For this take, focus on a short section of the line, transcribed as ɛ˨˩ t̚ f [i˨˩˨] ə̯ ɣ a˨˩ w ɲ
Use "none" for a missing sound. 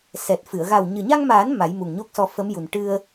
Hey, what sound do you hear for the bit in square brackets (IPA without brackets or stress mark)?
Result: ɨ˨˩˨